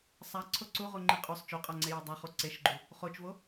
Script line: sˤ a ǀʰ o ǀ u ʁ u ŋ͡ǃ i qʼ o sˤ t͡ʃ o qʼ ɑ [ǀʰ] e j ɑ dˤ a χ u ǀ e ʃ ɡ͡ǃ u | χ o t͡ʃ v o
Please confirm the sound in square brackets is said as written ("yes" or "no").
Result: no